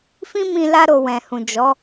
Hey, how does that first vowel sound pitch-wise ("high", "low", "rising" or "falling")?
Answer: high